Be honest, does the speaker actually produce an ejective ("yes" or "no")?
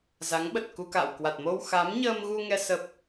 no